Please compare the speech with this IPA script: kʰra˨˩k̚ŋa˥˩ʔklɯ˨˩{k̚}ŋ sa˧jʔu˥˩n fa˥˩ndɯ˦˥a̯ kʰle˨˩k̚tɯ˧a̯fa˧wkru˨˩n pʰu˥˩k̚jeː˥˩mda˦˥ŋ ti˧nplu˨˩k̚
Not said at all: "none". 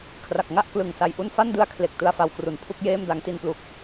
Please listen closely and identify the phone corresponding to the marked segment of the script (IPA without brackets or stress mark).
none